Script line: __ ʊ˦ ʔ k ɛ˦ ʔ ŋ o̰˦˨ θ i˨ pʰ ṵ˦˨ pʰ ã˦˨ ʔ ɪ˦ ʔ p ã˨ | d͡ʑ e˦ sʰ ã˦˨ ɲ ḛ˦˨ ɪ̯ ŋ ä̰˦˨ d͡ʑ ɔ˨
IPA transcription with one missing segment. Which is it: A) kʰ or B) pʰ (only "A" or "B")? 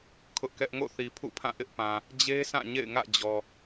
A